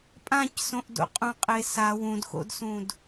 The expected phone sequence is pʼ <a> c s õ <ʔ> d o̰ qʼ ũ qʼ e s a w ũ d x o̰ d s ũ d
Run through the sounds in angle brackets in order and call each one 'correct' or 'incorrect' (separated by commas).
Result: incorrect, correct